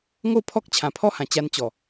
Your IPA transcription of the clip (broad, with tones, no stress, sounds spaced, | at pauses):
ŋ o˥˧ pʰ ɔ˦ k̚ t͡ɕʰ ã˨˩ pʰ ɔ˦ h ã˨˩ t͡ɕ a˧ n t͡ɕ ɔ˨˩